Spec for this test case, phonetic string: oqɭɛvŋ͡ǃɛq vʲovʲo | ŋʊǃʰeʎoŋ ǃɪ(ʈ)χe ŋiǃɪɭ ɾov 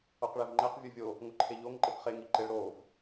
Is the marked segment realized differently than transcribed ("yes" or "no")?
yes